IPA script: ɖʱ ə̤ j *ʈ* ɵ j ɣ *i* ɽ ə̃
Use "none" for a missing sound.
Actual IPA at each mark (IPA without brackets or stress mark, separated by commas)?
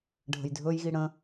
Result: dʱ, i